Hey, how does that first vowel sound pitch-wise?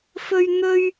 high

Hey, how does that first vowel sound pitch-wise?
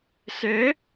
rising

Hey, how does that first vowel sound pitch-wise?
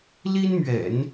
high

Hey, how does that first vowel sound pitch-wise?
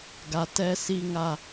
low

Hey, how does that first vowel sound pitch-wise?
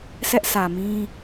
high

